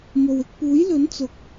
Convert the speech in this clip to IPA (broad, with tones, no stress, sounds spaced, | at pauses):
m o˨ w ɪ˧ k̚ p uː˨˥ j l ɵ˨˥ n t͡s ʊ˨˥ k̚